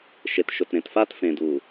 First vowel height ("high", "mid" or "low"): mid